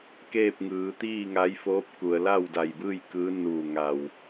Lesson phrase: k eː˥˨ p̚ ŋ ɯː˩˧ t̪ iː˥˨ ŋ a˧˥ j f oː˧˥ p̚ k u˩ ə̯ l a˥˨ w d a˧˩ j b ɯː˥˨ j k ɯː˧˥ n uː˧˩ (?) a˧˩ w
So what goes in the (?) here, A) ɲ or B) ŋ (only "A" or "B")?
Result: B